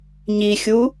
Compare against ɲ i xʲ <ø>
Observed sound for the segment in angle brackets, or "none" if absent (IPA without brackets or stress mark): u